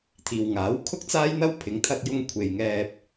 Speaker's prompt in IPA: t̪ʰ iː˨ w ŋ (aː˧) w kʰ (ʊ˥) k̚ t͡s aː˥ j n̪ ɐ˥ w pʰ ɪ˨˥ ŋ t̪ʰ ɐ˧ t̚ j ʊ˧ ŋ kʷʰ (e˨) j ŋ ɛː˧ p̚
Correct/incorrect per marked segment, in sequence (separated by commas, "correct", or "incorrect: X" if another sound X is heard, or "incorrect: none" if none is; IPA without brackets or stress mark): incorrect: aː˨˥, correct, correct